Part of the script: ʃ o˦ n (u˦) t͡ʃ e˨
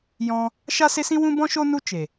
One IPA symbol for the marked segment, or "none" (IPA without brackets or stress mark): u˦